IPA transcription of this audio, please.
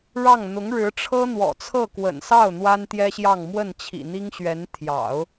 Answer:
ɻɑ˥˩ŋ n̪ʊ˧˥ŋ ɻɻ̩˧˥ʈ͡ʂʰɤ˥n̪wɔ̰˨˩t͡sʰɤ˥˩ kwə̰˨˩nsɑ˥˩ʊ̯ n̪wa˥nt̪jɛ˥ɕjɑ˥˧ŋ mwə˥˩nt͡ɕʰḭ˨˩n̪i˥ŋɕɥɛ˧˥n t̪ʰjɑ̰˨˩˦ʊ̯

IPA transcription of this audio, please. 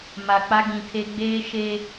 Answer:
ma˨k͡pa˦ ɡĩ˨tʰe˦ ɡ͡beː˦ʃe˦

